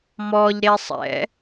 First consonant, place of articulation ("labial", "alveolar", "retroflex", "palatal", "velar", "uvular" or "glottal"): labial